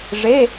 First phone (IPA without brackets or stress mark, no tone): ʐ